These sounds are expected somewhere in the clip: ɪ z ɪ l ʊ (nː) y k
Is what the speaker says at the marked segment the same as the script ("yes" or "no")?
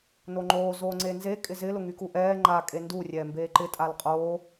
no